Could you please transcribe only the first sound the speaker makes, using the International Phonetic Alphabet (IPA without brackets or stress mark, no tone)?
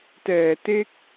t